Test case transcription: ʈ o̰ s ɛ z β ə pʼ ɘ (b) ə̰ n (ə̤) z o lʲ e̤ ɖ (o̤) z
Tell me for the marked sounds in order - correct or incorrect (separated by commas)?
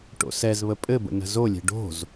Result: correct, correct, correct